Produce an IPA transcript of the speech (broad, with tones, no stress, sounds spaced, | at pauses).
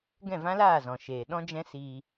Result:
ɡ ɛ̃˦˨ v ã˦ l aː˦˨ z ɔ̃˨ ʃ eː˨ ɗ ɔ̃˦ d͡ʒ ɛ̃˦ s iː˧